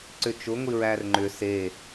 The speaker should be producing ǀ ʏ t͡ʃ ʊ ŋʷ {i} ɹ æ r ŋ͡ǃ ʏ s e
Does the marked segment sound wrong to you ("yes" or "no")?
no